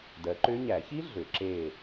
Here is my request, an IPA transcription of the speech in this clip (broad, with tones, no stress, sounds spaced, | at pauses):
d ɜ˨˦ ǃ ʏ˦˥ ɲ æ˨˩˦ ç i˦˥ ɮ ʏ˨˩˦ ǁ e˦˨